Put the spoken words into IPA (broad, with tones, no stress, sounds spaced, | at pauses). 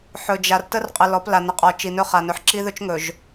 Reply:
ħ ɵ˨ d͡ʒ a˨ r t ə˦ r qʼ ə˨ l ɔ˨˦ p l a˨ n ə˨ qʼ ɔ˨ t͡ʃ i˨ n ɵ˦ χ a˨ n ɵ˨ ħ ǁ i˦ ð ɵ˦ t͡ʃ ŋ ɵ˨ ʒ